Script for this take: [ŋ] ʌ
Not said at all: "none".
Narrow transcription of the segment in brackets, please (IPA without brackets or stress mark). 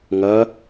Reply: ŋ